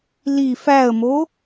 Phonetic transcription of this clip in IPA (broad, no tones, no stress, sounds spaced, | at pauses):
l i f æ ə̯ m o